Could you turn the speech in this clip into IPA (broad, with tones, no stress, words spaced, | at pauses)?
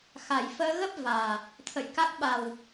xa˨˩jfəː˧ ɣə˦˥p̚ vaː˨˩ | t̪ʰə̰˧˨jka˦˥k̚ ɓa˨˩w